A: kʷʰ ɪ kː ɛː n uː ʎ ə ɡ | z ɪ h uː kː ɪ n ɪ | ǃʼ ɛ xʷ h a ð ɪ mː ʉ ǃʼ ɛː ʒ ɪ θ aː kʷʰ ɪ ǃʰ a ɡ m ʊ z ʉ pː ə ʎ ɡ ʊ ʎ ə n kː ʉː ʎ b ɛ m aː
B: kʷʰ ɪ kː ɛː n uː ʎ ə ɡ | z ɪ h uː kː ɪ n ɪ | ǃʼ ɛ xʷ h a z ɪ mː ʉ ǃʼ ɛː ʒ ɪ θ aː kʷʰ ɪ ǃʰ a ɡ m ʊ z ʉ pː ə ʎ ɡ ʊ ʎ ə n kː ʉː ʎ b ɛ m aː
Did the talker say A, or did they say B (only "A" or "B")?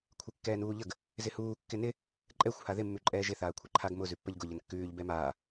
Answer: A